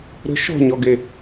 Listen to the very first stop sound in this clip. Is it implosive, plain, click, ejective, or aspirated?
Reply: plain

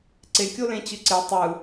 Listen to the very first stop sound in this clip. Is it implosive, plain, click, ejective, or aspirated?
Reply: click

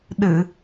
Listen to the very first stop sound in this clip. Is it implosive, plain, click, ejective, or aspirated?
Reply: implosive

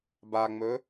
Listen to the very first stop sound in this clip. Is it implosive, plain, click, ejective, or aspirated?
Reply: plain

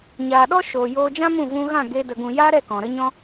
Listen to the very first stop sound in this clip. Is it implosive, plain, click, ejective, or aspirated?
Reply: implosive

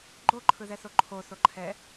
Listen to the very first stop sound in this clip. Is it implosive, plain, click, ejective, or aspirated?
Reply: click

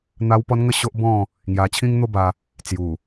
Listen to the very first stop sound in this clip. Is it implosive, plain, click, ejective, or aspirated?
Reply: plain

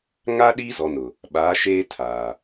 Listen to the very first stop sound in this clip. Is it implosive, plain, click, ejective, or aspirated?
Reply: implosive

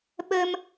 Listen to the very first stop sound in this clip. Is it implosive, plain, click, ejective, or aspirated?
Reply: implosive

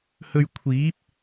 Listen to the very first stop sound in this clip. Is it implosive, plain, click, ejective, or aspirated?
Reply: aspirated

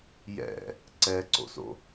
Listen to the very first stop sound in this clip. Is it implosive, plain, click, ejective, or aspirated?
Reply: click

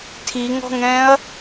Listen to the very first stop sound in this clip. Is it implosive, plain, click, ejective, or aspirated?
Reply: aspirated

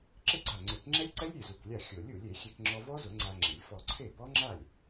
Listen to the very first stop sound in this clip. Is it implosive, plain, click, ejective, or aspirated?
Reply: click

